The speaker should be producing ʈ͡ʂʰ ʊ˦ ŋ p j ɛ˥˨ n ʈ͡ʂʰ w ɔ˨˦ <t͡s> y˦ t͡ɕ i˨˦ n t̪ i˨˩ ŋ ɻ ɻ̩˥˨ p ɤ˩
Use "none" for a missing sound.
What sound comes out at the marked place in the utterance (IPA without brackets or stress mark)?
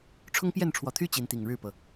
t̪ʰ